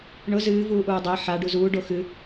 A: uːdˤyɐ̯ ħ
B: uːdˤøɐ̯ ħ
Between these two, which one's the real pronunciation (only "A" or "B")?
B